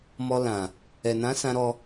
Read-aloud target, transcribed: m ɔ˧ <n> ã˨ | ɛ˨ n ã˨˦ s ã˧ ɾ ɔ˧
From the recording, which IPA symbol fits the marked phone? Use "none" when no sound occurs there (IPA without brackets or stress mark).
l